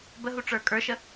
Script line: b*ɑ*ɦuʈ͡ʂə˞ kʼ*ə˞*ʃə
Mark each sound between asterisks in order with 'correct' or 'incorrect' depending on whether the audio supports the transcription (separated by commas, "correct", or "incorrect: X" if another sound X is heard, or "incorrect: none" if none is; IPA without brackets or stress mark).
incorrect: ə, correct